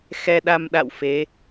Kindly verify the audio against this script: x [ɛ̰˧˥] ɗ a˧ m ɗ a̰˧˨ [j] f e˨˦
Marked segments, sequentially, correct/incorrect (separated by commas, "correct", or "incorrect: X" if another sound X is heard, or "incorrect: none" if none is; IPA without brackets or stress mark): incorrect: ɛ˧, incorrect: w